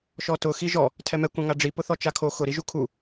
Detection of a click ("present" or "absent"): absent